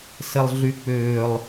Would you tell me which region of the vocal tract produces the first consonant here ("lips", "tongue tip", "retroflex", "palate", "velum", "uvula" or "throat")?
tongue tip